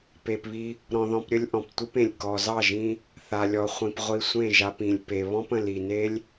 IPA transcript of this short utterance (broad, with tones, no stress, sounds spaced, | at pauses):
p e˨ p β i˧ | ɾ ɔ̃˧ ð ɔ̃˧ p ɾʲ ə˦ lʲ ʔ ɔ̃˨ p tʷ ɨ˦ p ẽ˨ lʲ k ɔ˨ z ɑ˦˨ ʒ ĩ˧ | θ a˨ lʲ ɔ˨ χʷ ĩ˨ p ʁʷ i˧ sʷ ẽ˦˨ ʒ a˧ p ĩ˨ lʲ p e˨ β ɔ̃˦ p ə̃˨ l i˨ n e˦ lʲ